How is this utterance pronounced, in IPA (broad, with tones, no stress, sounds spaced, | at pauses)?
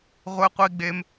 ʁʷ e˦ qʷ i˦ ɡ͡b e˦ m